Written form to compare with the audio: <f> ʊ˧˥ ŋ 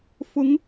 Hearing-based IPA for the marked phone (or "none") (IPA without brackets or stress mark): f